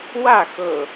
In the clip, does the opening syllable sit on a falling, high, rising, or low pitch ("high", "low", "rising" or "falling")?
falling